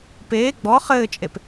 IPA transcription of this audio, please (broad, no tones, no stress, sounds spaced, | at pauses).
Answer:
p eː ɡ͡b ɔ χ ɘː t͡ʃʼ e p